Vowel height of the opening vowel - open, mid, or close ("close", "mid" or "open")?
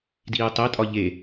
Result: close